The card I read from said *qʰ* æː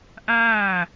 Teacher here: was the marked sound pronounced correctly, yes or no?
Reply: no